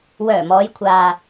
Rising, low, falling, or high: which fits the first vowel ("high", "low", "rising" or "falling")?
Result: low